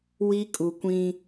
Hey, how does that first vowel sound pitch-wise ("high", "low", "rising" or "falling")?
high